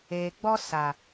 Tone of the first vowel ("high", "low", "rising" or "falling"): low